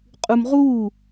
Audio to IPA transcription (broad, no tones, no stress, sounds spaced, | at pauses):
qʼ u m ʁ uː